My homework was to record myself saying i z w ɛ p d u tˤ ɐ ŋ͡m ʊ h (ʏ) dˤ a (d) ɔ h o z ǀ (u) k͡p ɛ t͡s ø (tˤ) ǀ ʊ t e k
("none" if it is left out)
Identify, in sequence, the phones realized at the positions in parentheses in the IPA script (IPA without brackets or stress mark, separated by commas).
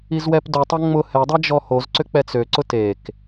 ɛ, d͡ʒ, ʏ, none